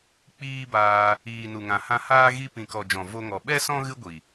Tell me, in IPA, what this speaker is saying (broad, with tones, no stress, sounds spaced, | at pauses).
k͡p iː˦ b aː˧ | iː˨ n u˨ ŋ ã˨ h ã˧ h aː˦ ɣ i˧ p ĩ˨ k ɔ˨ d͡ʒ ɔ̃˨ v o˧ ŋ ɔ˨ ɓ ɛ˦ s ɔ̃˦ ɣ ɨ˦ ɡʷ i˨